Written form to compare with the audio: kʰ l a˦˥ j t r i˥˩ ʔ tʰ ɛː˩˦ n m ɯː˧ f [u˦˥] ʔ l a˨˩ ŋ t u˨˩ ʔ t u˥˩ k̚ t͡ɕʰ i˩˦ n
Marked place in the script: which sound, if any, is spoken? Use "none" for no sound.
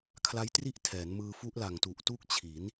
u˦˥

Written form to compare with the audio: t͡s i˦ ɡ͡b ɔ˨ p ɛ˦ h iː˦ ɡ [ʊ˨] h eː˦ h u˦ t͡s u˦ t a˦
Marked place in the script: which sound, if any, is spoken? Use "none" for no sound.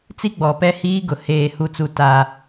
ʊ˨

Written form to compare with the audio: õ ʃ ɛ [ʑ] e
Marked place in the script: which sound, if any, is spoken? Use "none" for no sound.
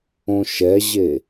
ʑ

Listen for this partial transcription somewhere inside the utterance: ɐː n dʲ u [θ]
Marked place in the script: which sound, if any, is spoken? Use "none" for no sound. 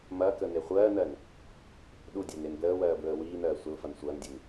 n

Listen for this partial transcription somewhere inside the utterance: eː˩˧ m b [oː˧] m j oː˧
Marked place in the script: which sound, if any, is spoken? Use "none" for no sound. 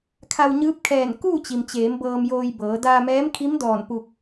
ɤː˧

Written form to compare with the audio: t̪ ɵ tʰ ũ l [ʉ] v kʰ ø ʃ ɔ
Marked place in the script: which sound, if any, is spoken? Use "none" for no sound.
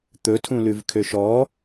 ʉ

